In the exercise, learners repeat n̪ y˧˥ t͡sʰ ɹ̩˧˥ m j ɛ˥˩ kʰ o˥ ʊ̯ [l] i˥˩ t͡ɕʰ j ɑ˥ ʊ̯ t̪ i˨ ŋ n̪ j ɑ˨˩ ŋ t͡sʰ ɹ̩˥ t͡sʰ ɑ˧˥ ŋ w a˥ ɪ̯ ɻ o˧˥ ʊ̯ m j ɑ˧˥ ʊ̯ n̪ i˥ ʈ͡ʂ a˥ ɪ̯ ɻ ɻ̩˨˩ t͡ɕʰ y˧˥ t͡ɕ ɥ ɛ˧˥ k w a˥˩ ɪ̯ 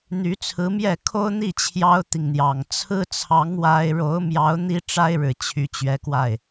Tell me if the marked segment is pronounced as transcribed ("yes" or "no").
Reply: no